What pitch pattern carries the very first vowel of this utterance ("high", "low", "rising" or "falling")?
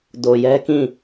low